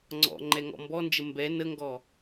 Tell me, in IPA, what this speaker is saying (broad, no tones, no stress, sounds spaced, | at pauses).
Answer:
ŋ͡ǀ ɔ̰ ŋ͡ǃ ɛ ŋ ɔ̰ m b ɔ n d͡ʒ ə m b ɛ n ə ŋ ɡ ɔ